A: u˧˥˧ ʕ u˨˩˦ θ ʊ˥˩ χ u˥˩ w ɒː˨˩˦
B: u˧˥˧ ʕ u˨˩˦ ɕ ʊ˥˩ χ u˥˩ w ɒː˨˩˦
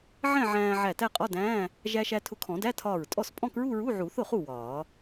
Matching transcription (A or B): A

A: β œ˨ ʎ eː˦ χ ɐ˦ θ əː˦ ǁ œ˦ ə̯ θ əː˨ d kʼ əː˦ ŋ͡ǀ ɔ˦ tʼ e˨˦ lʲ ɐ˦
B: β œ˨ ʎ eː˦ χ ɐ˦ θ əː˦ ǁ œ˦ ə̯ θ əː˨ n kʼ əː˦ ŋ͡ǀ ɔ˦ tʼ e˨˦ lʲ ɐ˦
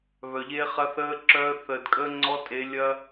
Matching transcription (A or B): A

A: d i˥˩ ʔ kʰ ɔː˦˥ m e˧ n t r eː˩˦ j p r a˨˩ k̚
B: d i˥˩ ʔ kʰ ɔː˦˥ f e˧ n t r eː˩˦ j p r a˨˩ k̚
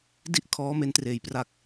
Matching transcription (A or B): A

